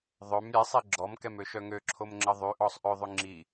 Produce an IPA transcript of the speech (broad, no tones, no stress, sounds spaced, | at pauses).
ðˤ ø m ɾʲ ɛ sˤ i ɡ͡ǁ ɔ m k ɛ m ø ʃ œ ŋ ø ǁʰ o m ŋ͡ǁ ə ðˤ y ʔ ɔ sˤ ʔ ø ðˤ y ŋ͡ǁ i